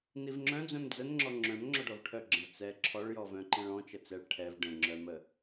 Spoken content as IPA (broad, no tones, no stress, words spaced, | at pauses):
nivŋ͡ǁœ̃ d͡zœ̃md͡zənŋ͡ǁɔ ŋ͡ǁœ̃m ŋ͡ǁɔɖɔvʈʰœɡ͡ǁə̃v t͡sɛ ǁʰɔɭjɔ vœ̃ǃẽɭɔ̃ t͡ʃət͡sɛɭ ʈʰɛv ɖə̃ŋ͡ǁœmə